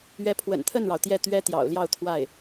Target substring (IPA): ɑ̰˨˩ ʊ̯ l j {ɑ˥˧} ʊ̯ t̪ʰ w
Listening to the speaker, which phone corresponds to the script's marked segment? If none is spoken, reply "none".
ɑ˥˧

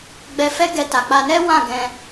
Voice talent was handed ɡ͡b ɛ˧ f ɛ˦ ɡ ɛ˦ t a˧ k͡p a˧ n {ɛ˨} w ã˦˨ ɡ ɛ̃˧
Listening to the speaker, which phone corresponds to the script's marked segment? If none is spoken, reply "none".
ɛ˦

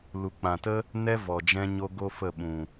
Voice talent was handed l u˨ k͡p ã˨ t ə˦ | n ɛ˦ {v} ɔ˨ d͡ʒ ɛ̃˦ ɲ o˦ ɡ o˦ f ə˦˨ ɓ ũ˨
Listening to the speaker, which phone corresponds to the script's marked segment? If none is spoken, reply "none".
v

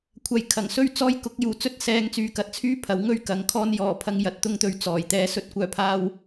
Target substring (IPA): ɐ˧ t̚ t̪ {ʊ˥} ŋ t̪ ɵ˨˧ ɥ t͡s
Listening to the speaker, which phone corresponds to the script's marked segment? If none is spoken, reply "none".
ʊ˧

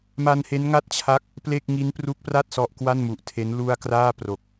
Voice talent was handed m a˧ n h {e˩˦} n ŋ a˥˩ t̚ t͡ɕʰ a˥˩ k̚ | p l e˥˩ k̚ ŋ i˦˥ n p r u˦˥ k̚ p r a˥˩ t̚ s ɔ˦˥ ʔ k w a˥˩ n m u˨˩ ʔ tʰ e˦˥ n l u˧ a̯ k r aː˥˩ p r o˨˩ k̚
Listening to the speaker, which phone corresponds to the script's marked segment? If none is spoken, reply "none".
e˦˥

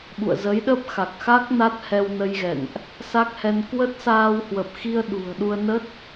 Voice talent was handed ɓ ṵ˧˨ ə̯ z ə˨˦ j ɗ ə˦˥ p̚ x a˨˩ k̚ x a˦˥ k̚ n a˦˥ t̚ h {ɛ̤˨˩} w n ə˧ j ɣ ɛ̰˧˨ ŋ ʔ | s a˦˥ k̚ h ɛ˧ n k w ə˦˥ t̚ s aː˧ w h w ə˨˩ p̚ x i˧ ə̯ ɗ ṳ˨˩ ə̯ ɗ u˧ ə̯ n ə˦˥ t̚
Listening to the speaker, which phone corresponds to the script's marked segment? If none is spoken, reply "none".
ɛ˧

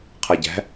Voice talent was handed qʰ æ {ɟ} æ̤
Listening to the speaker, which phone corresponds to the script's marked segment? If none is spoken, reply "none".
ɟ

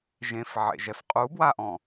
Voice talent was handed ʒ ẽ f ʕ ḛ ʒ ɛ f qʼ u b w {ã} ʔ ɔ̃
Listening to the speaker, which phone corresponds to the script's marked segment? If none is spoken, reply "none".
a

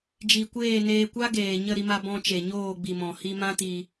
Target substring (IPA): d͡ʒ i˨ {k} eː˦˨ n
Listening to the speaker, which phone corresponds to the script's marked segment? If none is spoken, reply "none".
kʷ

